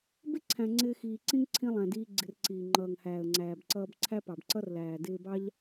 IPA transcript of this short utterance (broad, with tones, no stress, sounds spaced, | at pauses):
b ɪ˦ ǀʰ æ̃˨ ŋ͡ǀ ɪː˧ x iː˨ ǀ ĩ˦ ŋ ǀʰ ĩ˧ lˠ æ̃˨ d iː˧ ɡ͡ǀ ɪ˧ r ǀ iː˨ ŋ͡ǃ ʌː˨ ŋ h æː˨ ə̯ ŋ͡ǀ æː˨ b ǀ ʌː˧ b ǀʰ æ˦ p ɑ˨ b ǀ ʌ˦ r l æː˨ d ɪː˧ b ɑ˦ ʎ